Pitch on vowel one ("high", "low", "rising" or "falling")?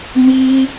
high